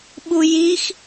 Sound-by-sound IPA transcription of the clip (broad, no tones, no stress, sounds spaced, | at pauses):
ɓ u j i x